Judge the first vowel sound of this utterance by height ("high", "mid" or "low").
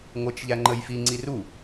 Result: mid